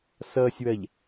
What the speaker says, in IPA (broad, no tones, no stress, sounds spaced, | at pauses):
s ʌː sʲ w ɐ ʎ